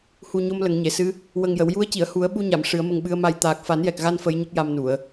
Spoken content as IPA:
h u˨˩ ɲ o˧ m l ə˨˩˨ ŋ ɲ e˨˩˨ s ɨ˧˥ | w ə˨˩ ŋ j ə˨˩˨ w j u˧˥ ə̯ c i˨˩˨ ə̯ h u˨˩˦ ə̯ ɓ u˧ ɲ a˨˩˨ m ʂ ɨ˨˩˦ ə̯ m ə˧ ŋ ɓ ɨ˧˥ ə̯ m a˧ j t̪ aː˨˩ k̚ f a˨˩˦ n j ɛ˨˩ k̚ ɣ a˧ n f ə˧˥ j ɲ ə˦˥ k̚ j a˧ m n u˨˩˨ ə̯

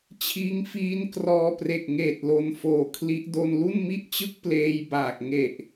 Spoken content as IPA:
t͡ɕʰ iː˧ ŋ f iː˦˥ n k r ɔː˧ p r e˨˩ k̚ ŋ eː˨˩ t̚ l o˧ n f oː˨˩ kʰ l i˦˥ ʔ d o˧ n l u˥˩ n m i˥˩ ʔ t͡ɕ ɯ˥˩ k̚ p l eː˧ j b aː˨˩ k̚ ŋ e˨˩ ʔ

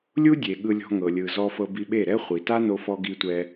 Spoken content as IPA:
lʲ u˦ dʲ e˨ ɠ ɯ˧ lʲ ɔ̤˧ ŋ ɤ˨ lʲ ɯ˨ z ɔ˧ f ɤ˧ b i˧ ɓ e˦˨ ɾ ɛ˦ χʷ i˨ t a˦ n o˧ f ɔ˧ ɡ i˦ tʷ ɛ˦

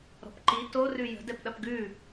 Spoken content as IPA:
ɾ ɔ̤ p ǃ i t o r ʉ j ə̤ d ɛ p ɗ ɐ p ɡ ʉ

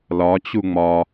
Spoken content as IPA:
l ɒ t͡ɕ u ŋ͡m ɒ

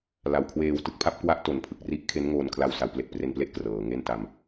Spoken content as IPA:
l a˨˩ w kʰ w eː˧ w t ɯ˦˥ k̚ pʰ a˦˥ p̚ k w a˥˩ ʔ t o˨˩ n pʰ ɯ˨˩ k̚ r i˦˥ ʔ kʰ e˦˥ n ŋ oː˧ n kʰ l a˧ w s a˩˦ w p l e˨˩ k̚ p r e˧ n p l e˥˩ ʔ k r ɤː˩˦ ŋ e˥˩ n t a˧ m

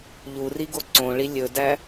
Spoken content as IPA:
ʎ u r i ɡ o ǀ õ ɭ i lʲ ɵ d æ

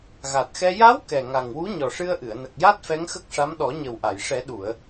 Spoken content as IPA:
ɣ a˨˩ t̚ x ɛ˧ j a˧˥ w k ɛ˨˩ ŋ a˨˩ ŋ w u˧˥ ɲ ɔ˨˩ ʂ ɨ˧ ə̯ ʔ ɨ˨˩˨ ə̯ n ə˨˩ k̚ j a˦˥ t̚ f ɛ˧˥ ŋ x ə˦˥ k̚ ʂ a˧˥ m ɗ ɔ˨˩˦ ɲ ə˨˩ w ʔ a˨˩˨ j ʂ ɛ˨˩˦ ɗ u˨˩˨ ə̯

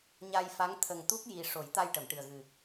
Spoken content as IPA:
ɲ a˧ j f a˧˥ ŋ t̪ʰ ə˨˩ ŋ t̪ u˦˥ k̚ j i˨˩ ʂ o˨˩˦ j t̪ a˧ j ʈ ə˨˩˨ m ʈ ɨ˨˩ ə̯ ɣ ɨ˨˩

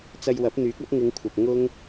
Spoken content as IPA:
t͡s ɐ˧ j w ɐ˨˥ p̚ n̪ yː˨˥ k̚ ɐ˥ p̚ ŋ ɪ˨˧ ŋ kʷʰ ɐ˨ p̚ ŋ ʊ˥ ŋ

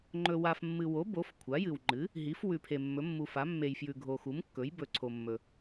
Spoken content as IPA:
ŋ͡ǃ ɵ˨ w a˨ f mː ɨ˨ w o˩˥ b o˩˥ f kʷʰ a˩˥ j ɨ˨ w ŋ͡ǃ ɨ˩˥ | ɦ i˩˥ f w ʉ˨ pʰ e˨ mː ɵ˩˥ mː u˨ f a˩˥ mː e˨ j f j ʉ˨ ɡʱ o˨ x u˩˥ m kː ɵ˩˥ j b ɵ˨ ǀʰ o˨ mː ɵ˨

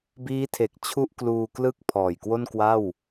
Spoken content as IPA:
b iː˦˥ tʰ e˨˩ k̚ t͡ɕʰ u˥˩ ʔ k l uː˧ k l ɯ˥˩ k̚ pʰ ɔː˨˩ j k w o˥˩ n k w a˥˩ w

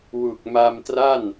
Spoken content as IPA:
w u˨˩ k̚ m a˧ m t r a˥˩ n

